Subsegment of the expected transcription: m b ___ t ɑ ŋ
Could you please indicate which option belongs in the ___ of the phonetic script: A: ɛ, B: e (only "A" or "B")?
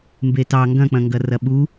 B